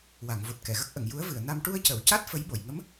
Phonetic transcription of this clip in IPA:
wa˨˩˨ŋvo˨˩t̚kɛ˨˩˨ ɣə˦˥k̚ʔə˨˩˨ŋ ju˧˥ə̯vɨ˨˩˨ə̯ na˧m ʈu˧ə̯cə˨˩˨wca˦˥t̚ fə˧˥jɓo˨˩˨j ŋə˧˥m

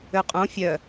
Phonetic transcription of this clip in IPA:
øqʼõ fʲœ

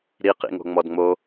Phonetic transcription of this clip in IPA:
ɾiqḭŋo̤ ŋ͡mɔdŋ͡mo

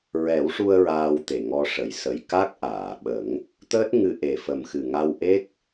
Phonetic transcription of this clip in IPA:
ɹɛ˨˩˦wʂu˧ə̯ ɹaː˧wt̪e˨˩ŋɔ˧ ʂə˨˩˨jsə˨˩j ka˦˥k̚ʔaː˨˩˨ɓə˨˩˦ŋ | t̪əː˦˥t̚ŋɨ˧ ʔe˨˩fə˨˩mxɨ˨˩ ŋa˧wʔe˦˥k̚

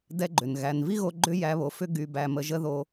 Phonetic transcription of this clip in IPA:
dɛ˦ɡ͡ǃʏ˨nɣæ˧n vi˦ɣo˧ ɡ͡ǃʏ˦jæ˧βo˨fʏ˦ ɡy˧bæ˧ mə˧ʒə˦ ðo˧

